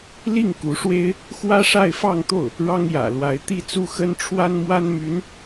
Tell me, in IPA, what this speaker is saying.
li˥˩ŋku˧˥ʂwe˥ɪ̯ | xwä˥ʂa˥˧ɪ̯fɑ˥˧ŋt̪o˥˩ʊ̯ | ɻɑ˥ŋjä̰˨˩lwa˧˥ɪ̯ t̪i˥˧t͡su˥˩xə˥n ʈ͡ʂʰwa˥nmwa˥nmy˧˥n

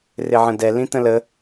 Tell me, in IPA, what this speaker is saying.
rɪʕə̃dɛ lĩt̪ə̃lə

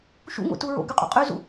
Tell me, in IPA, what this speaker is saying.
ʃṵŋo̰tu ɹo̰ɡyqʼṵ qʼyzṵ

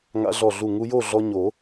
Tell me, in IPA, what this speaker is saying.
ŋa̰˧ɮɔ˧˩ɮu˧˩ ŋu˧jo˥˨ɮɔ˧ ɲo˨˩˦

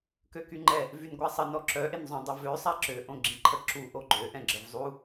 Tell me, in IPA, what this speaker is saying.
køkyŋ͡ǃɛ | vynɡʷasˤə nɔǁœ ʔenzˤõdˤivø sˤaǁø ʔõɡ͡ǁĩǃʰə ǁu ʔoɡ͡ǃø ʔɛ̃ɡ͡ǁəvzˤu

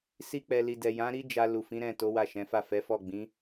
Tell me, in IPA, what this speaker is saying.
si˧k͡pɛ˨li˨dɛ˨ jã˨˦ɾi˦d͡ʒa˧ lu˨fĩ˨˦ɾɛ̃˦˨to˨˦ wa˦˨ʃɛ̃˨˦fa˦˨ fɛ˨˦fɔ˦˨ ɡ͡bĩ˨˦

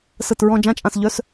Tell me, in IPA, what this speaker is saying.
sə˧˩t ɹɔ̃˧d͡ʒã˧˥˧t͡ʃʼã˧˩sʎœ˧˥˧s

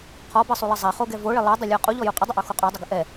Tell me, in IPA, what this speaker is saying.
qʰɔbɘsˤulˠə zˤɛχoɡɛ voɭɪ lˠɘdˤəlʲɔ qʼuʎɔju qʼədˤɪʔoxo qʼɔdˤɪɡə ʔɛ

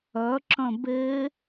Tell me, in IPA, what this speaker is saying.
œǁœ̃ be

